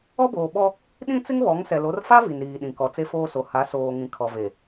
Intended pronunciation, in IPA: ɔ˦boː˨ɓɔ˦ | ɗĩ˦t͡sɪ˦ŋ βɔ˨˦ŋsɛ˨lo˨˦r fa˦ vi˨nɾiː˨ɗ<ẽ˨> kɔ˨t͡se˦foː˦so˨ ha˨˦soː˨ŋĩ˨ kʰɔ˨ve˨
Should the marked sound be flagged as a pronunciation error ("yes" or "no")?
yes